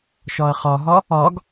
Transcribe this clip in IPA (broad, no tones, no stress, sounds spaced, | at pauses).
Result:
ʃ ɒ ɐ̯ χ ɒ ɦ ɒ | ɒ ɡ